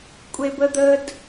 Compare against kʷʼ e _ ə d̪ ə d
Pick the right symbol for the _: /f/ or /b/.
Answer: b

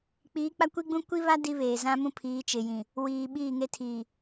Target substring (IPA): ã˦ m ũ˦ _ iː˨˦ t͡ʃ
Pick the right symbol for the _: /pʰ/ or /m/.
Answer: pʰ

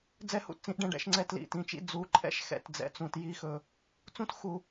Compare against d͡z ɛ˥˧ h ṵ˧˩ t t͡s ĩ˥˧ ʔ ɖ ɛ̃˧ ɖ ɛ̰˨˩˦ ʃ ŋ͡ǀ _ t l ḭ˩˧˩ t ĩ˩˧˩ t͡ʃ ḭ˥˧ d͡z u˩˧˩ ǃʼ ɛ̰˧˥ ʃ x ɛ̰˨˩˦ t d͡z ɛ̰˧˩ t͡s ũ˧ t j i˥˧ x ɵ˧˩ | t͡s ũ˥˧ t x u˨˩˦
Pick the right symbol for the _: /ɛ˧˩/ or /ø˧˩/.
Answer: ɛ˧˩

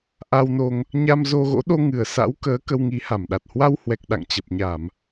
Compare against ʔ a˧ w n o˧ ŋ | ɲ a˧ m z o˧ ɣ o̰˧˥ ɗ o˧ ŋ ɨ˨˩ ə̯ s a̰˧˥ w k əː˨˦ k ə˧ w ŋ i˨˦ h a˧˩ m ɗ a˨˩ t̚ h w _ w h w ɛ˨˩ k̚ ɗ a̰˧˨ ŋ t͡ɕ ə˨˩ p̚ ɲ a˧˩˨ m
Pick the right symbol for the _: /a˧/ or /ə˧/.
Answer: a˧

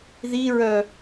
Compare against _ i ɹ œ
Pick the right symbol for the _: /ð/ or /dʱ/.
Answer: ð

